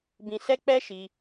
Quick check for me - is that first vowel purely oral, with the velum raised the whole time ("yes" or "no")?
no